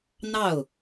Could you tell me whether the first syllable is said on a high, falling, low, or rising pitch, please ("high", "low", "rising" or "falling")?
falling